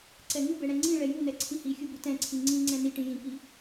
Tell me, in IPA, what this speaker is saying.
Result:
ǀɛŋubɛ ɽɛ̃ŋ͡ǀĩɭɛ junɛ ǀʰĩhixʲu butɛ̃ǀʰi ŋ͡ǀĩ ŋ͡ǀɛ̃niʈĩ jĩki

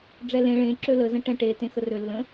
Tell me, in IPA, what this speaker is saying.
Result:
ɖ͡ʐɛlẽ ɭẽ ǁølə zə̃ʈɛ̃ʈe tẽxərø lːə̃

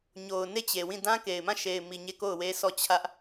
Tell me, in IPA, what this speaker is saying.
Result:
ɲo˨ʊ̯ne˦˨t͡ɕe˨wĩ˦˨ dã˦ ke˨ɪ̯ mã˦˨ʃe˨ɪ̯mi˨ ɲe˦˨ko˦˨ʊ̯we˦sʰɔ˦˨ t͡ɕʰä˦ʔ

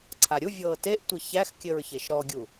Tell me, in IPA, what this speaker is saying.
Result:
ǀʰaɾʲuvʲɤː teʔtʷɘ çæxkʲɘɹçeʃ ɾɔɡʲu

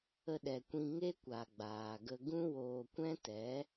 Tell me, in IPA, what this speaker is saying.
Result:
ə˧ɗɛ˨kʷĩ˧ ŋe˦kʷa˨ ɡ͡baː˨ɡə˧ ɡũ˦woː˧kʷɛ̃˦tɛ˨˦

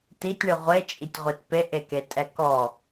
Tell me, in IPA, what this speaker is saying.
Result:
titʲɳɯ ʁʷet͡ʃʼitʲʁʷit peʔeketʼɛ kɔ

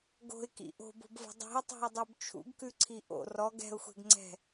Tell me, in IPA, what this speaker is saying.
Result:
ɡo̤ɪ̯kḭ ʔo̤bo̤bvo̤ dˤi̤ʊ̯tˤo̤ɪ̯dˤʉb t͡ʃʰṵɡkʉǀʰi ʔo̰ rɔɡ ɛ̤ʊ̯xʷɛ̤ɡŋ͡ǀɛ̤

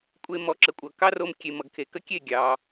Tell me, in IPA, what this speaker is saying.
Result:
kʷʼe˧mɔ˩˥ǁə˩kʷʼʌ˩ kɑ˥ro˧m kʲe˩mʌ˩ɡkʰe˩kə˥ kʲe˥˩ɡʲɑ˩

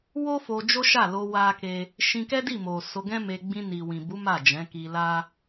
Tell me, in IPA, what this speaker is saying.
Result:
wo˦ fo˧d͡ʒo˦ʃa˦˨lo˧ wa˦ke˦ | ʃĩ˧kɛ˦di˦˨mo˨ so˧ɡɛ̃˦me˧ ɡ͡bĩ˧ni˨wĩ˨bu˨˦ ma˦˨d͡ʒɛ̃˨˦ ki˧la˦

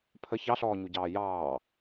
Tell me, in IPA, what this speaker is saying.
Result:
pʰə çɑɬɔːɲuɟɑː jɑː

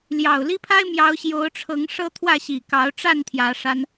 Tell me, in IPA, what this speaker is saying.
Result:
ljɑ˨˩ʊ̯li˦pʰa˦ɪ̯ mjɑ˨˦ʊ̯ɕjo˨˦ʊ̯ʈ͡ʂʰɤ˨˦ŋ ʂɤ˦t̪ʰwä˥˨ɕi˨˩ kɑ˨˦ʊ̯ʈ͡ʂa˥˨n t̪ʰjä˨˦ʂa˦n

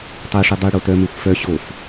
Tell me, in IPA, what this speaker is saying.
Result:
tˤøʂʉ dˤy ɽotœmøxʷ fœ ɕof

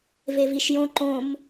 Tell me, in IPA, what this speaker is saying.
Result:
veviʃjõ ǃõm

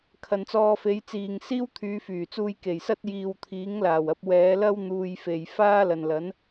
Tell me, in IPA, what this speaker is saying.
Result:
kʰɐ˨nt͡sɔː˧fe˨˧jt͡siː˨ŋ siː˥wt̪ʰyː˨˧fyː˨˩t͡suː˧j ke˨˩jsɐ˥t̚ jiː˧w t̪ʰiː˨˥ŋlaː˨˩wɐ˨˥p̚ wɛː˨˧lɐ˥w n̪uː˧j fe˨jfaː˥lɐ˨n lɐ˨˥n

